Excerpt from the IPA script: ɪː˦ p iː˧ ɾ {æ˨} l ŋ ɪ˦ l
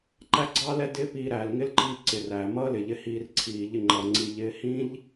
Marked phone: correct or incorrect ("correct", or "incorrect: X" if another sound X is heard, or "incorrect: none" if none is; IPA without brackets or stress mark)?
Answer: incorrect: æː˨